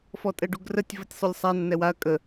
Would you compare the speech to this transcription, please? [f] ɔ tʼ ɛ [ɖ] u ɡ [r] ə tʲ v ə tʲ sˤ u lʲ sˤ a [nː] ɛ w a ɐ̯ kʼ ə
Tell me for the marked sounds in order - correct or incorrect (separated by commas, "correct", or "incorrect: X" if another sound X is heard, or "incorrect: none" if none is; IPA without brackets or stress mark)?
correct, correct, correct, correct